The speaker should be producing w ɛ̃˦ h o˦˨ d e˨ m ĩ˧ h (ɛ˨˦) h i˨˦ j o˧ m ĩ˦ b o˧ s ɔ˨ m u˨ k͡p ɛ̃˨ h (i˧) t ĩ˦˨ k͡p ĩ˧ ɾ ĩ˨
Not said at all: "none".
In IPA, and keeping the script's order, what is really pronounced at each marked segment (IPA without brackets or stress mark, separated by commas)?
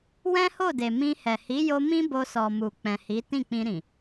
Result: ɛ˨, i˨˦